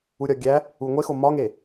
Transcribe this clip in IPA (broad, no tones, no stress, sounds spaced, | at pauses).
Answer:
u ɾʲ ɒ ɡʲ æ | u ŋʷ e x o m ɒ ŋ e